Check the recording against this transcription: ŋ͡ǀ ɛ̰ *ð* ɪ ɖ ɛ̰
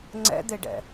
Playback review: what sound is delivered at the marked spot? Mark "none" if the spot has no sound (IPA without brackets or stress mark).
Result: d̪